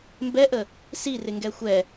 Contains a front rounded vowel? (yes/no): no